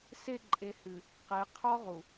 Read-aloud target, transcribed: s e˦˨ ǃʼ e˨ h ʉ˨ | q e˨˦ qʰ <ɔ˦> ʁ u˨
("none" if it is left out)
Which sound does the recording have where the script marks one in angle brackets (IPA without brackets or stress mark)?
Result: ɔ˦